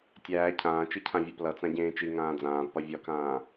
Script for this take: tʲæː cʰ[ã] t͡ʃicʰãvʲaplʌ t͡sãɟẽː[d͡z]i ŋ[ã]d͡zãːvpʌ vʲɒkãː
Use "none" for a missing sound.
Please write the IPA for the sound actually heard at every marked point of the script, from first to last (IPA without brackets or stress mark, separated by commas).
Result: ãː, t͡ʃ, ãː